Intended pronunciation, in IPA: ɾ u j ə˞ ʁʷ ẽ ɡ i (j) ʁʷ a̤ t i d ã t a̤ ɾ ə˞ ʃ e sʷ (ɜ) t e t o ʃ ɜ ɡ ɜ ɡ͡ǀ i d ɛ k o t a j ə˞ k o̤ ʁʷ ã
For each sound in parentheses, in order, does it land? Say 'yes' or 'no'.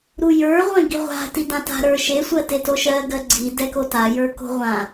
no, yes

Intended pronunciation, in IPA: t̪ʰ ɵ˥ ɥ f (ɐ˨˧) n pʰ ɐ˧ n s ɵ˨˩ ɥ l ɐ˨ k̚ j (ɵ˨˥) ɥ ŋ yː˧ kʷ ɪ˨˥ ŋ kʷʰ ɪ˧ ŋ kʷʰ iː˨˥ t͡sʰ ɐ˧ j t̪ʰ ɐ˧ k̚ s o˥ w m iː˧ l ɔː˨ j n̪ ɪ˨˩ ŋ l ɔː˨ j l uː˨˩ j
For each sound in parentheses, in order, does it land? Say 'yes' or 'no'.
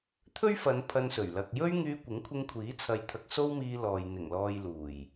yes, no

